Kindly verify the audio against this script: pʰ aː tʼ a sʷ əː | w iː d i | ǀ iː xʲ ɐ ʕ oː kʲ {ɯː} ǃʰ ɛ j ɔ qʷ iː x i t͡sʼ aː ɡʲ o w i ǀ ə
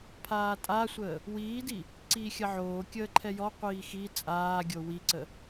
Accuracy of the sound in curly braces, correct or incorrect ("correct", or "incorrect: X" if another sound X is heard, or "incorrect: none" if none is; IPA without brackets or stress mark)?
incorrect: əː